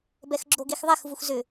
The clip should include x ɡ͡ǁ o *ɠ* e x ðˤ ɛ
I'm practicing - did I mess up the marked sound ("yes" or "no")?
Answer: yes